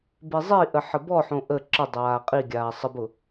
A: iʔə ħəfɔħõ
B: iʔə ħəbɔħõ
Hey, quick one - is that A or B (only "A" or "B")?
B